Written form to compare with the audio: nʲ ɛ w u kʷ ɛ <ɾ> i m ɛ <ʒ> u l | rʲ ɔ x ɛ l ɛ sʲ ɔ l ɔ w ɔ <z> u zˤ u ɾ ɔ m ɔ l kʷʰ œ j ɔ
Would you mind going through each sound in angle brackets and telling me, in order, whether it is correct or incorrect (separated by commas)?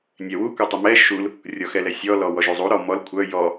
incorrect, incorrect, incorrect